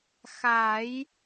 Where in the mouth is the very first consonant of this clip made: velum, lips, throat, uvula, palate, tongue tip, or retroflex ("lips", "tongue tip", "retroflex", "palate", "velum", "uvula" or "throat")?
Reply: velum